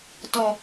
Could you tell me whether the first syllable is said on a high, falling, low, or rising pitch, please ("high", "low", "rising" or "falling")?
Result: low